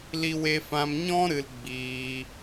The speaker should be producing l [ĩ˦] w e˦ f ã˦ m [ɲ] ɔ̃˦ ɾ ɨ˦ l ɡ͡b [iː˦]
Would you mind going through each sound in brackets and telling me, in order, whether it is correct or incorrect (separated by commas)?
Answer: incorrect, correct, correct